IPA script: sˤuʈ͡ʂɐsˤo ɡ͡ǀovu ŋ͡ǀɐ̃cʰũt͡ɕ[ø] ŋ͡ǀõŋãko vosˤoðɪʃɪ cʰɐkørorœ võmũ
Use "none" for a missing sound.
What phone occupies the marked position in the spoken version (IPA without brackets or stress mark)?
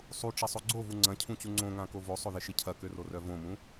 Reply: u